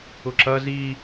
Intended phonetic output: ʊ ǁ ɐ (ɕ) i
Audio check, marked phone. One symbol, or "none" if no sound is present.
z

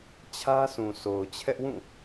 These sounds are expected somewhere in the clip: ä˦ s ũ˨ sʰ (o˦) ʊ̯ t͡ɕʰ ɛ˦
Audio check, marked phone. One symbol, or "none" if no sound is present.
o˨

